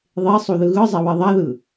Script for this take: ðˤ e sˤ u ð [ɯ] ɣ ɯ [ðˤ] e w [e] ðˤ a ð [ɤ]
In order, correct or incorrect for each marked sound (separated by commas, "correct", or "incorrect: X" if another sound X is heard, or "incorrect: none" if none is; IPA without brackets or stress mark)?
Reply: correct, incorrect: zˤ, correct, incorrect: ɯ